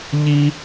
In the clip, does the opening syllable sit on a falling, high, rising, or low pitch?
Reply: high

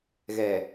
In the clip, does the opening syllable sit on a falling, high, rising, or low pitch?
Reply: low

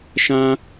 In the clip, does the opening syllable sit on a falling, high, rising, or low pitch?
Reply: high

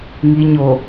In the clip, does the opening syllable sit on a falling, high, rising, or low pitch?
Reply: low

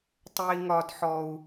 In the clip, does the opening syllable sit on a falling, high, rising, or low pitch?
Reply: high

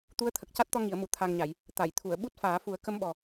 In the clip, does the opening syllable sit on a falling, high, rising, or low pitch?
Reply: rising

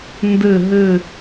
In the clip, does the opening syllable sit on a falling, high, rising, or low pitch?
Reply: low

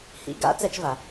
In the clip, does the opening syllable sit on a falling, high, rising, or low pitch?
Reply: rising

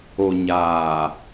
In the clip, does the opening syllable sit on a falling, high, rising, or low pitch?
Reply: low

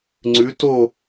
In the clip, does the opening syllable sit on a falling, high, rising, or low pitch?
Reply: rising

